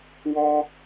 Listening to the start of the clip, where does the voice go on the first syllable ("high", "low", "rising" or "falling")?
high